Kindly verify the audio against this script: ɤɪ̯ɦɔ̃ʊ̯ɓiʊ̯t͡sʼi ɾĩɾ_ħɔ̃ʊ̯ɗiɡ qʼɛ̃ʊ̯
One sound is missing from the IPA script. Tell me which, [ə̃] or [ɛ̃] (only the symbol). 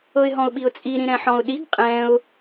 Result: ɛ̃